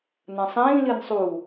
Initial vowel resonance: nasal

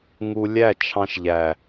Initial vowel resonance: oral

